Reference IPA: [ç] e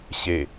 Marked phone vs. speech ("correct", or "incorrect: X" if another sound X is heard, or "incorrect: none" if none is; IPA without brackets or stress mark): incorrect: ɕ